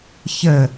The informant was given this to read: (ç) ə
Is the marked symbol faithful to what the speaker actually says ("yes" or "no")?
yes